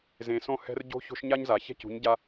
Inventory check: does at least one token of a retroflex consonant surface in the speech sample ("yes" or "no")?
no